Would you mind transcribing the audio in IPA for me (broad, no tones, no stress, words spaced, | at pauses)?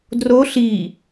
dro ɬi